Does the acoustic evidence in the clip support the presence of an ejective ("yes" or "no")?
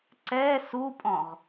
yes